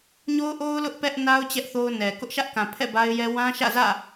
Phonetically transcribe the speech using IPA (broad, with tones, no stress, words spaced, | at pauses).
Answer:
ɲo˦ʊ̯ʔo˦ʊ̯ lʊ˦ʔ pɛ˦ʔna˦ʊ̯ t͡ɕɛ˦ʔθo˦ʊ̯nɛ˨ kʊ˦ʔʃä˦ʔkã˨pʰɛ̰˦˨ ba˦ɪ̯jɛ˦ wã˦ ʃä̰˦˨zä̰˦˨